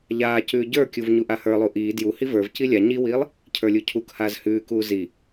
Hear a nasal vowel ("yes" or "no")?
no